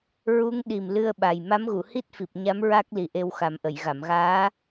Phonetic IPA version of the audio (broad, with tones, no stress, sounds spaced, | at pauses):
ɹ u˧˥ ŋ ɗ i˨˩ m l ɨ˧ ə̯ ɓ a˨˩ j m a˧˥ m ɣ u˨˩˨ h i˦˥ t̚ f i˨˩ p̚ ɲ a˧˥ m ɹ a˦˥ k̚ l i˨˩ ʔ e˧ w x a˨˩˦ m ʔ ə˨˩˨ j ɣ a˨˩˨ m ɣ aː˧˥